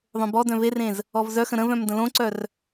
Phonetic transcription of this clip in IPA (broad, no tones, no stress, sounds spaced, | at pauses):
ðˤ õ b ɔ d œ̃ v e r ẽ z | ɔ v z œ x ə̃ ɾ ə̃ v œ̃ m d ə̃ l õ ǀ œ r